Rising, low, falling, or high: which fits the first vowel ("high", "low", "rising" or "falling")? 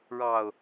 low